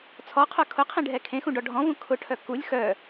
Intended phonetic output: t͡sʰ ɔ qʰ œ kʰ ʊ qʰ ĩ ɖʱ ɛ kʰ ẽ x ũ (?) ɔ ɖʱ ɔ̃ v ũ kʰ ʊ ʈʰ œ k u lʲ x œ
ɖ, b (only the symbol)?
ɖ